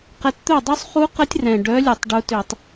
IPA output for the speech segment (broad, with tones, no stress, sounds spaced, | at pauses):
q ɛ˨˦ t t̪ œ˥˩ dˤ u˦˥ sˤ χ u˦˥ q ə˦˥ tʲ r ɛ̃˨˩ ɖ œ˨˦ lʲ u˧˩˧ tˤ ɖ u˨˦ t ø˧˩˧ tˤ